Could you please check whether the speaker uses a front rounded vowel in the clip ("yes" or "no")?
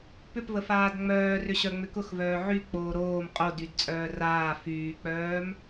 yes